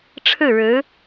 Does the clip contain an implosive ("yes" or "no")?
no